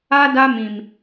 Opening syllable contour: high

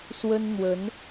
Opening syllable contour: high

